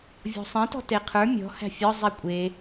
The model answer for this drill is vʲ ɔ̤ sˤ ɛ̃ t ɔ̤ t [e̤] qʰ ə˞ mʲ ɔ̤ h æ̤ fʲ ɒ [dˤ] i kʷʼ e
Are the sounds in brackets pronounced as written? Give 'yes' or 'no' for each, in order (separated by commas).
no, no